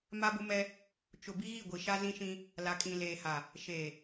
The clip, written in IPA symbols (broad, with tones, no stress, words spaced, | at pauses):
ma˦bʊ˦mɛ˦ | t͡ʃʊ˨ bi˦ɣi˦˨ɡʷi˨ ʃa˦zĩ˦ʃĩ˦ | la˨kʼĩ˨leː˨ha˨ | ʃeː˨